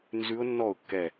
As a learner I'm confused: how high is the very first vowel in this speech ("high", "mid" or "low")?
high